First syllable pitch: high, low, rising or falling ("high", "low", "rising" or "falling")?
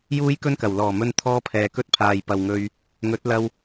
high